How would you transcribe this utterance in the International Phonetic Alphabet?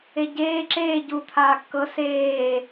e ɟ eː ǁ eː ɟ u t̪ʰ aː kː ɤ s eː

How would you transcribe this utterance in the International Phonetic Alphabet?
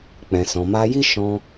k͡p ɛ̃˨ s ɔ̃˨ m a˧ j i˦ ʃ ɔ̃˧

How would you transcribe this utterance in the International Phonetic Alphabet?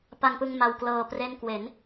p a˧ ŋ p ɯ˧ ŋ m a˧ w k l ɤː˧ p r e˥˩ n k w e˩˦ n

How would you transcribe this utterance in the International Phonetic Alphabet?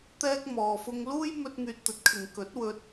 t̪ ɛː˥ k̚ m ɔː˧ f ʊ˥ ŋ l uː˥ j m ɵ˥ t̚ ŋ yː˧ t̚ t̪ ɵ˨˥ t̚ kʰ ɪ˨ ŋ k ɵ˨˥ t̚ w ɵ˧ t̚

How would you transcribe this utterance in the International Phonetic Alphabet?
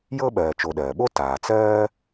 j ɤ˥ ɓ ɜː˨ t͡ʃ o˨ ɗ ɜː˩ ɓ o˥ t aː˩ t͡s ɜː˥

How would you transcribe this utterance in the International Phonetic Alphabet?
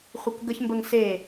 χʷ e k ɡ ə ç m b ə ŋ s e

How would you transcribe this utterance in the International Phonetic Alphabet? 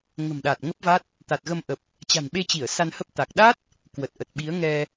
ŋ ə̤˨˩ m ɗ a˨˩ t̚ ŋ ə˦˥ p̚ v a˦˥ t̚ | t̪ a˨˩ t̚ ɣ ə˧ m ʔ ə˨˩ p̚ | t͡ɕ a̤˨˩ n ɓ e˧ t͡ɕ i˧˩ ə̯ s a˧ n h ə˦˥ p̚ t̪ a˨˩ k̚ ɗ a˦˥ t̚ | k w ə˨˩ t̚ ʔ ə˨˩ t̚ ɓ i˨˦ ə̯ ŋ ɛ˧

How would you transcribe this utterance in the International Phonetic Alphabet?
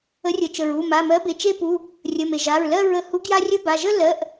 ə˨˥ rʲ ə˩ t͡ʃ ə˩ ɹ u˩˧˩ m a˩˧˩ m ɜ˨˥ b e˩˧˩ t͡ʃ e˥˧ p u˩˧˩ | rʲ ə˩˧˩ m e˩ ʒ a˩˧˩ ɹ l ɜ˥˧ ɹ ə˧ h u˨˥ ɡ j a˧ rʲ ə˧ b a˩˧˩ ʒ ə˥˧ l ɜ˩˧˩ ʔ

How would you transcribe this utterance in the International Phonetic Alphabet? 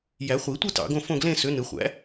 j æ˨˩˦ χʷ i˨˩˦ tʷ ɯ˥˧ t ɑ̰˨˩˦ ɡ õ˥˧ f õ˥˧ ɡ l ẽ˥˧ s ø˨˥ n ɯ˨˩˦ χʷ æ̰˨˥

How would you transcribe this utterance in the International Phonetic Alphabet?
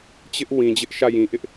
t͡ɕ ɪ˦ ʔ w ĩ˨ d͡ʑ ɪ˦ ʔ ʃ ä˦˨ j ĩ˨ ʔ ɪ˦ ʔ

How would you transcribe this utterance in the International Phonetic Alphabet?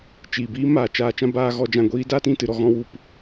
t͡ʃ iː˨ b iː˦ m aː˨ t͡ʃ aː˧ t͡ʃ ã˦ b aː˦ ɣ ɔ˦ d͡ʒ ã˦˨ ɡʷ iː˦ d aː˦ t ĩ˧ t ɨ˦˨ ɾ ɔ˦ ɣ ɔ̃˦ w u˧ p

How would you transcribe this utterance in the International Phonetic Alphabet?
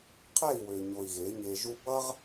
qʰ ɛ˦˨ i̯ w ø˨ ɲ o˨ i̯ ɣ e˨˦ ɲ e˧ ʒ u˦ b ʌ˦ ʁ

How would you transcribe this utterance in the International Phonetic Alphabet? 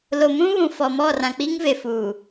l o˨ m ũ˦ β ũ˨ f ɔ˨ m ɔ˦˨ r ã˨ k͡p i˦ ŋ v e˨ f uː˨

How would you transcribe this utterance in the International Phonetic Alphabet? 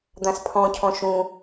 d̪ ã s pʰ ɔ̃ cʰ ɔ̃ ʃ ũ

